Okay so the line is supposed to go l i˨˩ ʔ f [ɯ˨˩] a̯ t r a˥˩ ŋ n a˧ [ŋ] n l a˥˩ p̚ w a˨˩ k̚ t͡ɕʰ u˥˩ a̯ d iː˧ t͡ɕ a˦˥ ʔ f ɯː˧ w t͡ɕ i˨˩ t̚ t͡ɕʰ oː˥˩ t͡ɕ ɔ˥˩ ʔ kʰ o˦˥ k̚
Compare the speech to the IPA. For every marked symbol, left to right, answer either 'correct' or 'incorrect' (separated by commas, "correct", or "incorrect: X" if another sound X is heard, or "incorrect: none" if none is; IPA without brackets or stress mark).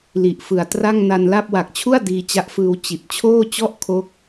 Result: correct, incorrect: none